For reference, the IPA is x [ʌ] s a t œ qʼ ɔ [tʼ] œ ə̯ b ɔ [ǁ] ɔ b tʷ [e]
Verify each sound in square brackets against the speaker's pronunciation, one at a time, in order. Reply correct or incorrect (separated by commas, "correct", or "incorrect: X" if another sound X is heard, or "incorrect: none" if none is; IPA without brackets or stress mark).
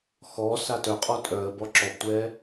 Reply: incorrect: ɔ, correct, correct, incorrect: ɛ